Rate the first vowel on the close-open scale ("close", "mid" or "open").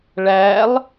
open